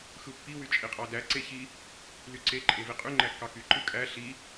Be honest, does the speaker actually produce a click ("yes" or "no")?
yes